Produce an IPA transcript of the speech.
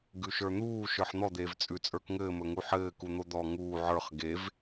ɡ ʉ ʃ ə˞ n̪ uː ʃ ə˞ ħ n̪ ɔ d̪ eː v t͡sʼ ʉ t͡sʼ ə˞ k ŋ ɘː m ɵ ŋ u ħ ɘː k u n̪ o d̪ ɔ ŋ uː ʕ ə˞ χ ɡ e v

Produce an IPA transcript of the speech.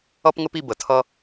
ʌ˦ p ŋ ə˦ p i˧ b ə˨ tʰ ʌ˦

